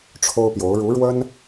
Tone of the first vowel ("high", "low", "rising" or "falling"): high